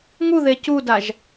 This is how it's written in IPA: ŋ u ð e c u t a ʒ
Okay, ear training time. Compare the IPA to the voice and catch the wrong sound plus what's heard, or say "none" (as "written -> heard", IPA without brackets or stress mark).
t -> d